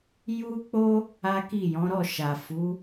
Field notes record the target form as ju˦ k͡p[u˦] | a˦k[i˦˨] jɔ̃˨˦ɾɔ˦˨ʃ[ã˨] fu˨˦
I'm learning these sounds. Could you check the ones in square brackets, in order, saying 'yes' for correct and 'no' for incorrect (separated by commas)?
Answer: no, yes, no